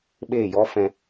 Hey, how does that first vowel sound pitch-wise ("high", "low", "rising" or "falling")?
falling